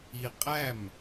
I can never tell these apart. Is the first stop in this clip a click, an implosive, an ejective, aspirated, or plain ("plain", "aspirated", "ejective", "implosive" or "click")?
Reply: ejective